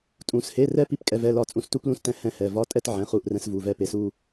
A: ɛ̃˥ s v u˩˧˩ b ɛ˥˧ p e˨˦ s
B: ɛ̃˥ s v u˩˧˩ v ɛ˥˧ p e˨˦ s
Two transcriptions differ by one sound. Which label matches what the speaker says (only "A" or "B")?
B